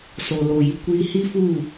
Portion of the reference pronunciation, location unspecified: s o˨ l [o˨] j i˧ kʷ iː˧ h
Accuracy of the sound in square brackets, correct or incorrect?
correct